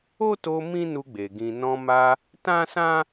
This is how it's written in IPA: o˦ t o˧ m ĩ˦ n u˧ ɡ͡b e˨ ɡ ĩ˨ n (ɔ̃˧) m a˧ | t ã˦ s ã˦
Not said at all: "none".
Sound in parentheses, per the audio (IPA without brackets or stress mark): ɔ̃˧